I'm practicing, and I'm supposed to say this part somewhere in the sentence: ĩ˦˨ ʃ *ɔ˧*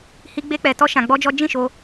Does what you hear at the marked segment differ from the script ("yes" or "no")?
yes